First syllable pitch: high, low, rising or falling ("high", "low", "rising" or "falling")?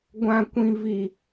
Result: high